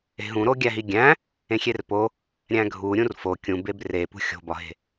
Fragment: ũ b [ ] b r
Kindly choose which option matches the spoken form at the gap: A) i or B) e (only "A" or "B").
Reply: B